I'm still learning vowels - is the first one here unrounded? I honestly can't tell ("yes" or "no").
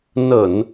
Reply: yes